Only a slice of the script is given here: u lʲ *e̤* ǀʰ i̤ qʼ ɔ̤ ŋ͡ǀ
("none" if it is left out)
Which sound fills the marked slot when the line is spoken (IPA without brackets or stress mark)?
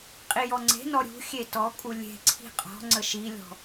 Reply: e̤